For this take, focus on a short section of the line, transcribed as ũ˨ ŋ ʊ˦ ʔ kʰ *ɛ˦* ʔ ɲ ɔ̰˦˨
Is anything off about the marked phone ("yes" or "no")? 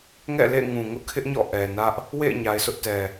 yes